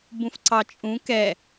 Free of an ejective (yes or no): no